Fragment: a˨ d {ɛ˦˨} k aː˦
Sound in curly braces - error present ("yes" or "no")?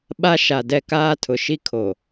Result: no